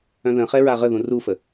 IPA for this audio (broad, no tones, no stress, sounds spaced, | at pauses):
œ̃ ð ə̃ χ ɛ ɹ a ʁ ə ð ũ r u f ə